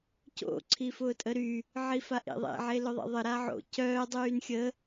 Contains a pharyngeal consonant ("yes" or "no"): yes